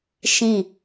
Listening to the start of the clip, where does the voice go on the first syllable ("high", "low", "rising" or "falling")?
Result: falling